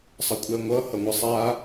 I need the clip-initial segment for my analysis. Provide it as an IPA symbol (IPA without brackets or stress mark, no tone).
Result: sˤ